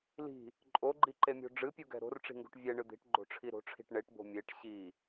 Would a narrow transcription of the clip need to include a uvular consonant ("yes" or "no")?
no